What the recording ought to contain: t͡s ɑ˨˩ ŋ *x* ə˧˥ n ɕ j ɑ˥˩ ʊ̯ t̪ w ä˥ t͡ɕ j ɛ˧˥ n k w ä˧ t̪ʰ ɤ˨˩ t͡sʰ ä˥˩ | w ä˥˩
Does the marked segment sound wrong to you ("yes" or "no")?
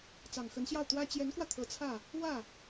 no